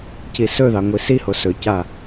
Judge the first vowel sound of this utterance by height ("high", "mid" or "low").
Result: high